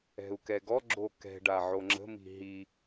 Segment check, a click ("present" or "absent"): present